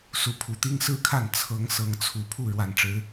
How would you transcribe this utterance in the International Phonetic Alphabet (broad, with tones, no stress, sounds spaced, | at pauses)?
s u˨˦ pʰ u˨˦ t̪ i˦ ŋ s ɹ̩˥˨ kʰ a˥˨ n t͡sʰ ɤ˨˦ ŋ s ɤ˨˦ ŋ t͡sʰ u˨˩ pʰ u˥˨ ɻ w a˨˩ n ʈ͡ʂ ɻ̩˨˦